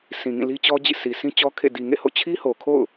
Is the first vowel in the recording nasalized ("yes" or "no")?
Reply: yes